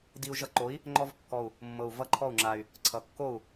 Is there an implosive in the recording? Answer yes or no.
no